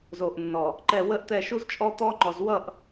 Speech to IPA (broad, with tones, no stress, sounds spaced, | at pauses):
z o˨ ʔ nː ɔ˨ | ǃ ɛ˦˨ w ə˦ ʔ t̪ ɛ˦˨ ʃ u˦ z t͡ʃʼ ɔ˦ t̪ ɔː˦ ŋ͡ǃ ɔ˨ z w ʌ˦˨ ʔ